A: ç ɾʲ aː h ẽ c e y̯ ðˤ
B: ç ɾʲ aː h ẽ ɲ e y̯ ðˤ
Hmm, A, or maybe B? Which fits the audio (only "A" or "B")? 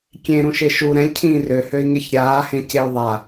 A